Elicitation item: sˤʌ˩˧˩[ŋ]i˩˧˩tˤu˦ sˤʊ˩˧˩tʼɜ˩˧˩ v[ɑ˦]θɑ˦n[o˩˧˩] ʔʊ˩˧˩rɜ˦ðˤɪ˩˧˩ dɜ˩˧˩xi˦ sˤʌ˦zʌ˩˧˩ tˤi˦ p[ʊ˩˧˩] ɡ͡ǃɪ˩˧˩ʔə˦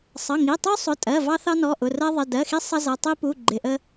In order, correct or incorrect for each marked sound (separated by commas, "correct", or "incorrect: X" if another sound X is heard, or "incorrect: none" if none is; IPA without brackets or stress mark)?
correct, correct, incorrect: ɔ˩˧˩, incorrect: u˩˧˩